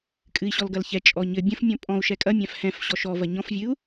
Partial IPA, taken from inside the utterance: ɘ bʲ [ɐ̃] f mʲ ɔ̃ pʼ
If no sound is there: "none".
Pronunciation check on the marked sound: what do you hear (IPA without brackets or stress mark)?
ɐ̃